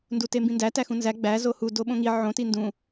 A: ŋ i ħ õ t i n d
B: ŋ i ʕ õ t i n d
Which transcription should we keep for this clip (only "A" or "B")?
B